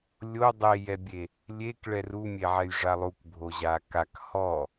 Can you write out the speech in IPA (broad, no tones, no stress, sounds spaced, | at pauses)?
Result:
lʲ o dˤ e j ɛ bʲ e | lʲ e k ɭ ɛ r u mʲ e ʕ ɛ j ʐ a lˠ u k bʱ o ʑ a k a k h ɔ